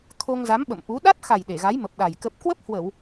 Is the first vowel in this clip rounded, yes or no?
yes